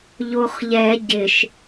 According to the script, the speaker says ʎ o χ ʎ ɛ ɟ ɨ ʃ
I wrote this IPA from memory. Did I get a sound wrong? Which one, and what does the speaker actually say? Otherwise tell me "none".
ɨ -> ɪ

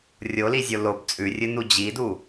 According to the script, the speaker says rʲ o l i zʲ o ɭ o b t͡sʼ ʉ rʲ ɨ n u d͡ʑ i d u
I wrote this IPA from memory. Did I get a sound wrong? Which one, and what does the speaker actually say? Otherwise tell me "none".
ɭ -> l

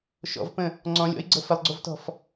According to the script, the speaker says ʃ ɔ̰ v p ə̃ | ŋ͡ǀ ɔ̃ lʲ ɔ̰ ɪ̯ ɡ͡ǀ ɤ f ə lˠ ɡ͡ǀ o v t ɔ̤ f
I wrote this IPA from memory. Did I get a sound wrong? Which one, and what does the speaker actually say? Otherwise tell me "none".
none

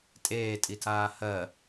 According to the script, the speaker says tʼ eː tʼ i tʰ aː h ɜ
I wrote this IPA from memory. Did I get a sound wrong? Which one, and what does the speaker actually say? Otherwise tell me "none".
none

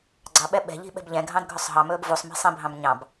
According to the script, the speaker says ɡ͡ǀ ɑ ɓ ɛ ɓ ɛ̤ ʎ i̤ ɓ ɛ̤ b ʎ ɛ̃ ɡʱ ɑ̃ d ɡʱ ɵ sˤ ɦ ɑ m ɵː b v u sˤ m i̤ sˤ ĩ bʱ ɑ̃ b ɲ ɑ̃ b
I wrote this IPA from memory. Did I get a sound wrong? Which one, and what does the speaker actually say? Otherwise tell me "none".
none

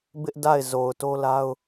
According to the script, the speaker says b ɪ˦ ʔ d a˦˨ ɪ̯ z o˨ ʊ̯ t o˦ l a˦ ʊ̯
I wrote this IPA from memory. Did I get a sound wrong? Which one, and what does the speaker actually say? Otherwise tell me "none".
none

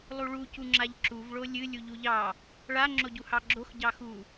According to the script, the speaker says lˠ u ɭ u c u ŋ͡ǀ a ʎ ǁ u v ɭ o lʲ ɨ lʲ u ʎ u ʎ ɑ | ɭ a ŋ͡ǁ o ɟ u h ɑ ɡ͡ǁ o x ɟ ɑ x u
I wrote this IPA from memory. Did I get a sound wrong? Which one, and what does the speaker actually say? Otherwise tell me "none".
ŋ͡ǀ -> ŋ͡ǁ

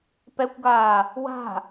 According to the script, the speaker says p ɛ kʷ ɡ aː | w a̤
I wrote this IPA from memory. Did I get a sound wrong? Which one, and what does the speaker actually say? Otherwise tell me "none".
none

